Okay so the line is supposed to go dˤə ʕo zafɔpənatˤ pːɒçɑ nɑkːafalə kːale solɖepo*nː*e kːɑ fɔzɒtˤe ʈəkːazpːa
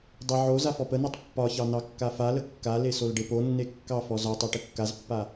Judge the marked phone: correct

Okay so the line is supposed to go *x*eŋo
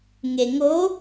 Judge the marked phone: incorrect: ŋ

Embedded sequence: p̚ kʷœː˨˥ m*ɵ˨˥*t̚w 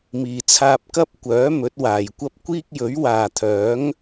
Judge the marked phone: correct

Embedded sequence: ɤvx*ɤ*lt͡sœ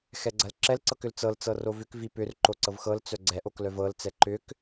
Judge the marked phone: correct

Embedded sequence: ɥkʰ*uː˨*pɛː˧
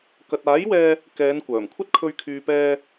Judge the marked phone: incorrect: yː˨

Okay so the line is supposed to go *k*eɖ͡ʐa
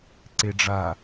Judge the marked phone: incorrect: ǀ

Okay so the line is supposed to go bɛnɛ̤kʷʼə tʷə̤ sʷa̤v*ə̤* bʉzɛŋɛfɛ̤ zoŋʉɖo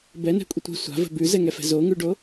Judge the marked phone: correct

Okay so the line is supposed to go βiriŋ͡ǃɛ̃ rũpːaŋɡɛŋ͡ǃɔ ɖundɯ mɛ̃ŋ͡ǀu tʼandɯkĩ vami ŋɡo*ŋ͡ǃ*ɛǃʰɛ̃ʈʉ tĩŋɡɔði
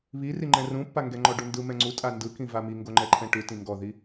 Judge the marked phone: correct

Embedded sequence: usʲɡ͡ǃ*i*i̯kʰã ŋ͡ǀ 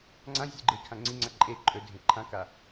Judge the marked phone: incorrect: e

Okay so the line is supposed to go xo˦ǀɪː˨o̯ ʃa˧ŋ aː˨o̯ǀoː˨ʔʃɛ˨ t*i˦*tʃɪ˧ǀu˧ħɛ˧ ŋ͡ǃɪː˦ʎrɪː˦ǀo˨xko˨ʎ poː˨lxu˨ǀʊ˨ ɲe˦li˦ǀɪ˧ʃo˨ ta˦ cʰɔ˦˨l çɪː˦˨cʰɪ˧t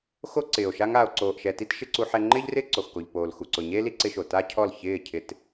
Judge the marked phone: correct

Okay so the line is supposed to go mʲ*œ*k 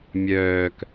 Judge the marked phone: incorrect: œː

